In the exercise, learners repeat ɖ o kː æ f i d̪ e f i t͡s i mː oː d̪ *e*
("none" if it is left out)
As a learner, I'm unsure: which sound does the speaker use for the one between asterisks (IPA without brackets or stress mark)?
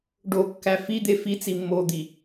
i